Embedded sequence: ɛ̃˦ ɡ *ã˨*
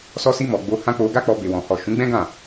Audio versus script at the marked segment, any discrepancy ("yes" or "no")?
yes